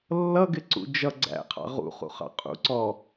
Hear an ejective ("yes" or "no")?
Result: yes